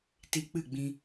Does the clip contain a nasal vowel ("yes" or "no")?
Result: yes